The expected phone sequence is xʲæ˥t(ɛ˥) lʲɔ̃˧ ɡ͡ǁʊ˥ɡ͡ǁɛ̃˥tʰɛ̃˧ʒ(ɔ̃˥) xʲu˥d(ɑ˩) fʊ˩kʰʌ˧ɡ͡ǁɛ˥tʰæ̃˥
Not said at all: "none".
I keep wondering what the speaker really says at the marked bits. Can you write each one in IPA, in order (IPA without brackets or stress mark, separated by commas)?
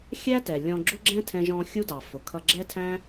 ɛ˩, ɔ̃˧, ɑ˩